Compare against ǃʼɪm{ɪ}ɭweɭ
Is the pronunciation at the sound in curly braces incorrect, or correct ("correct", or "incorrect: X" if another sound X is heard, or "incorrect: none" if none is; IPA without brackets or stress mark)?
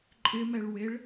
incorrect: ɛ